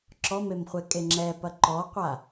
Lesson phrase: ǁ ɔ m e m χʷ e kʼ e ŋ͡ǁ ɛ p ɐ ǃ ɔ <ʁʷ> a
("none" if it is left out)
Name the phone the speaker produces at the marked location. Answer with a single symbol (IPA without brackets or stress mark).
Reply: qʷ